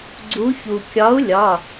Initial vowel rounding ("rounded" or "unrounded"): rounded